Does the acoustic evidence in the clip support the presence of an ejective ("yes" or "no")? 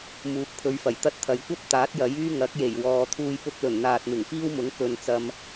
no